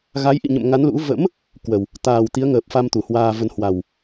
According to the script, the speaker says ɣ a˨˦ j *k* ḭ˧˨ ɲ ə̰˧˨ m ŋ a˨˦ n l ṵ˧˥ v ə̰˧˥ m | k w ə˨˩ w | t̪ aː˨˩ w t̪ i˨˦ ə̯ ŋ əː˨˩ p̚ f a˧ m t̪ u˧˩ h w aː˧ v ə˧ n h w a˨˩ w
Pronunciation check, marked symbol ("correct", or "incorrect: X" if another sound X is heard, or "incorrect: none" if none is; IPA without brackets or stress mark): incorrect: ʔ